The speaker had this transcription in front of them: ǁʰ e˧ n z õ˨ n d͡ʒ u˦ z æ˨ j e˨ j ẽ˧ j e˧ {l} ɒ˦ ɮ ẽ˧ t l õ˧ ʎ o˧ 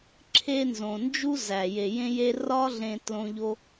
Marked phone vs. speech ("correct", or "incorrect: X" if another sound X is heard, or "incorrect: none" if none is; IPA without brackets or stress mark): incorrect: r